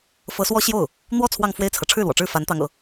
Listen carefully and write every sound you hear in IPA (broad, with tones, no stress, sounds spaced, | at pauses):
f ɤ˧˥ s w ɔ˥ ɕ j o˥˩ ʊ̯ | n̪ w ɔ˥˧ t͡sʰ w ɑ˥˧ ŋ f w e˥˩ ɪ̯ t͡sʰ ɤ˩ ʈ͡ʂʰ ɻ̩˥˩ l w ɔ̰˨˩ ʈ͡ʂ ɻ̩˥˩ f a˧˥ n t̪ ɑ˧˥ ŋ ɤ̰˨˩˦